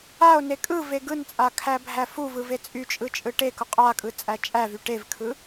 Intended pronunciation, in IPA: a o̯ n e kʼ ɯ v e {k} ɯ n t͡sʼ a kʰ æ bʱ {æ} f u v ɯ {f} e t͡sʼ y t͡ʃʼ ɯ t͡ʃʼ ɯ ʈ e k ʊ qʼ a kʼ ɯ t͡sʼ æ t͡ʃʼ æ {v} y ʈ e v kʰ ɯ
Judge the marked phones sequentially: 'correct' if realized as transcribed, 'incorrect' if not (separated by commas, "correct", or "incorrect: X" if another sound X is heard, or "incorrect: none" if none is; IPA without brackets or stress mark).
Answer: incorrect: ɡ, correct, incorrect: v, correct